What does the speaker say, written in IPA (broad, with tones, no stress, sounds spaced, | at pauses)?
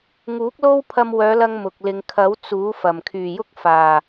ŋ uː˨˥ k̚ l o˥ w pʰ ɐ˧ m w œː˨˧ l ɐ˧ ŋ m ʊ˨ k̚ l ɪ˨ ŋ kʰ ɐ˨˥ w t͡s uː˨˥ f ɐ˨˩ m kʰ yː˨˩ j ʊ˥ k̚ f aː˨˩